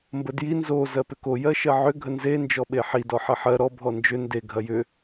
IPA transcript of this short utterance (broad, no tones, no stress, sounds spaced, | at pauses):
m b ə d j i n z o z ɜ p ʏ k o j ɜ ʃ ɜ ʕ ʏ ɡʱ ə n z e n d͡ʒ ɔ ɓ e ħ i d ɔ ħ ɐ ħ ɜ ɾ ɔ bʱ ɔ n d͡ʒ ʏ n d e ɡʱ ɐ j ʏ